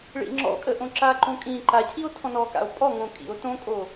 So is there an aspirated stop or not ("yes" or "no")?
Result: yes